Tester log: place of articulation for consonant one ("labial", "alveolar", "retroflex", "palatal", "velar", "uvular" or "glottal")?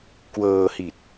velar